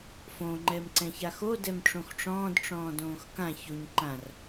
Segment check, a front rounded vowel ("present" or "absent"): absent